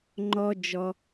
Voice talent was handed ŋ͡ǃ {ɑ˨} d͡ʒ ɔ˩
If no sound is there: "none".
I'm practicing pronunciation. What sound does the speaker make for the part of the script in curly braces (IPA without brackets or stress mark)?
ɔ˨